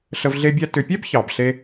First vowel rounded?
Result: no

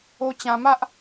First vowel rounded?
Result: yes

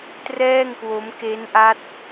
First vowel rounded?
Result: no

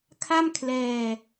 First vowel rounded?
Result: no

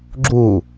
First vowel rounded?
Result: yes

